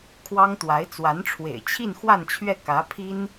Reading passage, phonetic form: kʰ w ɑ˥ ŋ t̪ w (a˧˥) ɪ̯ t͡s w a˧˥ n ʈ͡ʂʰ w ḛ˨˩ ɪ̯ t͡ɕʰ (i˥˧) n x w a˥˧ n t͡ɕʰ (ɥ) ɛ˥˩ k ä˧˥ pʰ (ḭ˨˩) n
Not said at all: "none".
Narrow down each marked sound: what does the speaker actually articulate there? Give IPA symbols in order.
a˧˥, i˥˧, ɥ, i˥

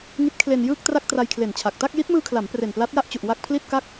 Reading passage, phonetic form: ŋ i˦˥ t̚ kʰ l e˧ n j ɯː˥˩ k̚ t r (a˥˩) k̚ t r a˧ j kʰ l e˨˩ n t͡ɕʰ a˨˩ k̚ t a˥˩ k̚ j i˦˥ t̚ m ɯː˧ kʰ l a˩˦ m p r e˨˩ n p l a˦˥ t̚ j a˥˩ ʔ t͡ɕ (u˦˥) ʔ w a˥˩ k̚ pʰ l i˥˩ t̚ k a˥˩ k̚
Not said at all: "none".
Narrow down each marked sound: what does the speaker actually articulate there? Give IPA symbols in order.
a˥˩, u˨˩

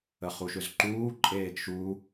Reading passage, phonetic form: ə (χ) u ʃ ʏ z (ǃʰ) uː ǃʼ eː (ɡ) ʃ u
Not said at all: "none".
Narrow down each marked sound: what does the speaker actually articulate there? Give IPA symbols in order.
χ, ǃ, ɡ

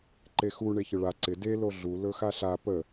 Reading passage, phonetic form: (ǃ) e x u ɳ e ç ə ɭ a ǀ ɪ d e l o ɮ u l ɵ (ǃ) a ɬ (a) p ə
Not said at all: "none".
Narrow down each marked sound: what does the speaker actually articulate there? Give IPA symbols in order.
ǃ, x, a

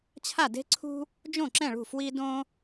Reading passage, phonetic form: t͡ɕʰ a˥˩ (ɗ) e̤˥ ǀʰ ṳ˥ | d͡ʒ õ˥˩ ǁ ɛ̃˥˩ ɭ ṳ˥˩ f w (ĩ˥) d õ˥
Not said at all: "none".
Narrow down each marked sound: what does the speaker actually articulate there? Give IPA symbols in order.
d, i˥

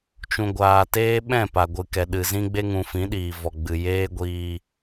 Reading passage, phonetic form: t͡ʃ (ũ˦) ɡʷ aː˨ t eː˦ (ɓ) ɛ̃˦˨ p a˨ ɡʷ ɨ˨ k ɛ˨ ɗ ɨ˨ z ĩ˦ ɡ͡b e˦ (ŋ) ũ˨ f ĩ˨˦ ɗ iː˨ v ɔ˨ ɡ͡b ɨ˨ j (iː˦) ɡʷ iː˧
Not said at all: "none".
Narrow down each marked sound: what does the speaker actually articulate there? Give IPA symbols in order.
ũ˨, ɓ, ŋ, eː˦

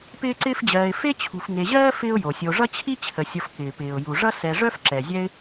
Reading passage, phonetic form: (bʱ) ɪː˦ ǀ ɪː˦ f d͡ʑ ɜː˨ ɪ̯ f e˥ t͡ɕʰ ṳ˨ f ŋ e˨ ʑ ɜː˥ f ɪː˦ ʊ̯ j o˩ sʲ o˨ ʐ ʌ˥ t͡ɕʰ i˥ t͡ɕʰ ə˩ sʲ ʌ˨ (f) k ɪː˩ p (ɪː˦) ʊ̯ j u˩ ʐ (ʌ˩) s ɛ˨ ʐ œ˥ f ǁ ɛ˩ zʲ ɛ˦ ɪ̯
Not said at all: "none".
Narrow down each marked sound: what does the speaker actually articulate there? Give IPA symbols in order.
p, f, ɪː˩, ʌ˥

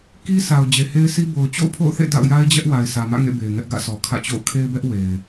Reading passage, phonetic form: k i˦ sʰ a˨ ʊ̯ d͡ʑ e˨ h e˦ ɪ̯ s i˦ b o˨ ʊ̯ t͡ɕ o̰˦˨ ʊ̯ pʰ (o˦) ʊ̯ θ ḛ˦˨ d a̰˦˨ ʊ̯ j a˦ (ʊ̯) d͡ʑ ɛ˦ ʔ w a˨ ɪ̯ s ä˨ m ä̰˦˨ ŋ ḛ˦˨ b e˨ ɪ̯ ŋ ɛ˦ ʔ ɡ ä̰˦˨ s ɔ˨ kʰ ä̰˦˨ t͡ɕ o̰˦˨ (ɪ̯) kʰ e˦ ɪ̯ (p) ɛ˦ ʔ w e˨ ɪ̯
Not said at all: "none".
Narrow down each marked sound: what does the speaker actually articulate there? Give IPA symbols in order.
o̰˦˨, ɪ̯, ʊ̯, b

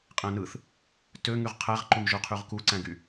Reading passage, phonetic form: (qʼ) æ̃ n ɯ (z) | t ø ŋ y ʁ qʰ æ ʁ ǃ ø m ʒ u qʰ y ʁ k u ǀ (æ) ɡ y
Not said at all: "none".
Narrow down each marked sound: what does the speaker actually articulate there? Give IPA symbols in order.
qʼ, θ, æ̃

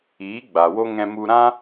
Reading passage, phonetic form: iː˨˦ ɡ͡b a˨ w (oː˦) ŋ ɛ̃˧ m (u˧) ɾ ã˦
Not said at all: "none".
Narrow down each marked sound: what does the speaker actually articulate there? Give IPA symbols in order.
o˦, u˧

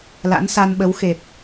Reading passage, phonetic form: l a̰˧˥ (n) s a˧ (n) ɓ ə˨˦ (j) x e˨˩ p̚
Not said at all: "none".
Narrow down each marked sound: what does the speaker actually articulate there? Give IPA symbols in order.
n, n, w

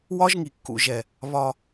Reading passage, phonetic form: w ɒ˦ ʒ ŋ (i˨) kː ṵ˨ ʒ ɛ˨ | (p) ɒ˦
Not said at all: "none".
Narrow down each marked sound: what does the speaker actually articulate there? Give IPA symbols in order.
i˨, β

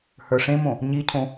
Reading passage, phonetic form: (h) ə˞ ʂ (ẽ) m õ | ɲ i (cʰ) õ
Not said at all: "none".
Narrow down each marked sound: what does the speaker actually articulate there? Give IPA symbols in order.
h, ẽ, cʰ

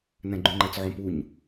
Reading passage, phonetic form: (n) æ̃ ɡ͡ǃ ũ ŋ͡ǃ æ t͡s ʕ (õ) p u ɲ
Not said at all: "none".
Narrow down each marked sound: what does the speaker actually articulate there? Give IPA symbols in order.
n, õ

